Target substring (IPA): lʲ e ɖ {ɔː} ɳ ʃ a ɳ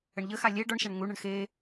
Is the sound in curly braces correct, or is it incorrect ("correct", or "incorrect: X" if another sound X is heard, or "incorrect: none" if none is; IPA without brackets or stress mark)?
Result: incorrect: ɔ